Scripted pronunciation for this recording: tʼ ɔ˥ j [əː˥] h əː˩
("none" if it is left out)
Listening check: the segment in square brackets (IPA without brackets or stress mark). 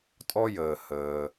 əː˩